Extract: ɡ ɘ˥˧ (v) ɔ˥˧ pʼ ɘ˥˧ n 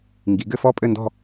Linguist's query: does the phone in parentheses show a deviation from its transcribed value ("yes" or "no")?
yes